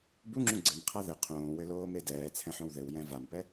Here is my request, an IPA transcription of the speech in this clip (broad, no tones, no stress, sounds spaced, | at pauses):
b u ŋ͡ǁ ũ ɡ͡ǀ ɘ m qʰ a ð ɘ qʰ õː w ɘ l oː m e d ɛː t͡sʰ ɛ̃ ħ õ w ð ɘ w j ɛ̃ v a m p ɛ